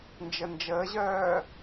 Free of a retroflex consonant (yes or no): yes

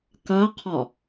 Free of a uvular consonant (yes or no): no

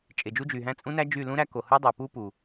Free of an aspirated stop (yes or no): yes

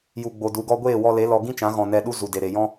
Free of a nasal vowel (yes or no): no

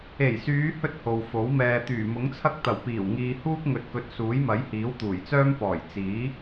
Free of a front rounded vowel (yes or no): no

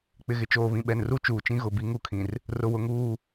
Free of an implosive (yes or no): no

